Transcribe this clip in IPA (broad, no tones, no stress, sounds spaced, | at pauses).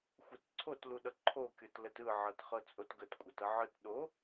xʷ ɛ t ǀʰ o t l u ɗ ʌ ǃʰ o kʲ ɤ t l ə t ɯ ʕ ɤ t χ ɤ t͡sʼ o t ɡ ə t kʷʼ ʌ t ʌ ʕ ɯ t ɗ o